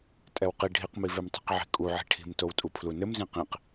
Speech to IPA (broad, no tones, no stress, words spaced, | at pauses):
tʼɛwqi ɖʱiqmivem tˤi̤qʕi̤kʼuʕi̤ ʈʰi̤mtowtʼu pʰlunɘmzĩ qĩq